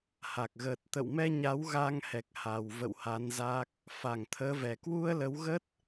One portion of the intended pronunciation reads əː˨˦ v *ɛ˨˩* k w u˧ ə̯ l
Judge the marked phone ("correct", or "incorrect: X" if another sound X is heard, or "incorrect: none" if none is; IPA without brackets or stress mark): correct